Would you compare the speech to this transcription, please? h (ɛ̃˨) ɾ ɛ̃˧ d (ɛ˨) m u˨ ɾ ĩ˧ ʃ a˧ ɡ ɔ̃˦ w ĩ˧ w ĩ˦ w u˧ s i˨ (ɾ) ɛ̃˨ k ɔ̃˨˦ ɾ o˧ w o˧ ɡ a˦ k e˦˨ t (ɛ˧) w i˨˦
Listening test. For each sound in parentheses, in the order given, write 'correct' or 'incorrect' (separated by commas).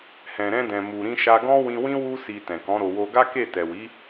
correct, incorrect, incorrect, incorrect